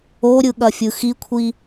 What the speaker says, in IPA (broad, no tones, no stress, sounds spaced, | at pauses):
o ɾʲ ɯ ɠ ɐ fʲ ɯ x i kʷʰ i